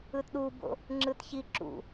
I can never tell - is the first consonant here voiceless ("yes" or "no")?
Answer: yes